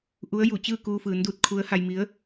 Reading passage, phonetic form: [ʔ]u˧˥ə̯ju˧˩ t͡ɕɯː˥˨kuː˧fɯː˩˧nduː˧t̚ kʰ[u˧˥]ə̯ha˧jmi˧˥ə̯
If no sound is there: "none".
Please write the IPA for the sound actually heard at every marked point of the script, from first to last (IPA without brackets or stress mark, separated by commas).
ʔ, u˧˥